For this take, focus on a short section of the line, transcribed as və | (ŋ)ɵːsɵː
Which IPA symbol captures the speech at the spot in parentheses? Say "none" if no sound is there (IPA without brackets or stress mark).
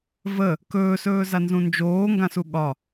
k